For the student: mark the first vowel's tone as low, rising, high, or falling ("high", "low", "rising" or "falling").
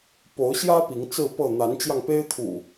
rising